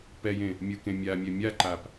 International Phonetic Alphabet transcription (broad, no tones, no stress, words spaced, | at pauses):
pɛjẽ | mʲɯkẽmʲamʲɛ mʲaǃap